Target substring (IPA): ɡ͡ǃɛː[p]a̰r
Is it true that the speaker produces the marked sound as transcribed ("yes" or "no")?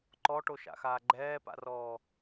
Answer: yes